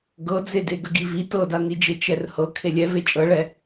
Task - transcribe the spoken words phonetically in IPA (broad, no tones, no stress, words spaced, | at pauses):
ɡɤd͡zede ɡəɡivi tɤdanid͡ʒe t͡ʃɛrhɤ kʰelʲɛve t͡ʃʼɤɭɛ